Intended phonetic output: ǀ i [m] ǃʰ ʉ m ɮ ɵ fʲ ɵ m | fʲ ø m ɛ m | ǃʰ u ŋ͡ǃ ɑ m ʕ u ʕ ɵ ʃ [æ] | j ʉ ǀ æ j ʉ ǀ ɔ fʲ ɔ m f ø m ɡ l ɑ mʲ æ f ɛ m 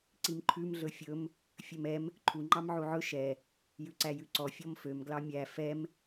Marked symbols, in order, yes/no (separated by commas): yes, no